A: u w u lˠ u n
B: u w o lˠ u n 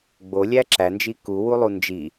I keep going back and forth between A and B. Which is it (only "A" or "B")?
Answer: A